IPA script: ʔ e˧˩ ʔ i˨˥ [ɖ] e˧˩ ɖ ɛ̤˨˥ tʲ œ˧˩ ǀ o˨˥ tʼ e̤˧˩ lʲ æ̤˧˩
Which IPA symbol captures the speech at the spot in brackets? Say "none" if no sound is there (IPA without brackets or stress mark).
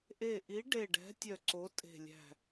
ɖ